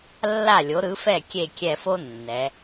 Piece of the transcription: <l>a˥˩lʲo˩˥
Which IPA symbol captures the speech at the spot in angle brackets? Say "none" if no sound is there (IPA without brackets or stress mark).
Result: lː